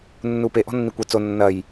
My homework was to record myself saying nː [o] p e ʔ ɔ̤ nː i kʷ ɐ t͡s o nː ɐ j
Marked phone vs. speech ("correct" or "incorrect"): incorrect